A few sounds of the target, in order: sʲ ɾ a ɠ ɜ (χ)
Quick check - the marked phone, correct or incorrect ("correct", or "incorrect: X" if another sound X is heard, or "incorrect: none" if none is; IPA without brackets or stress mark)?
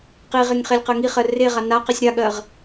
incorrect: ʁ